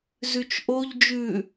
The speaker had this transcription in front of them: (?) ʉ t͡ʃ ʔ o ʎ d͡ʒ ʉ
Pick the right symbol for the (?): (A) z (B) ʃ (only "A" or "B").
A